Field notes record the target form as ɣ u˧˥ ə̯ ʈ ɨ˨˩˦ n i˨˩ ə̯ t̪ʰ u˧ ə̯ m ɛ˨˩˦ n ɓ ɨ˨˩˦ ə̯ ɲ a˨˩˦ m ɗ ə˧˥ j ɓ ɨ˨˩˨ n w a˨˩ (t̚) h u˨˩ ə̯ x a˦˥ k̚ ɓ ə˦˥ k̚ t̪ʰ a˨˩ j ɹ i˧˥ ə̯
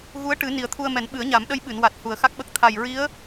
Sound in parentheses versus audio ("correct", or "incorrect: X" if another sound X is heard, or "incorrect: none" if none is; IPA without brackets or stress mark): correct